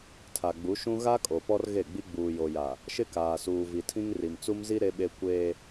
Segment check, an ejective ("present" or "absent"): present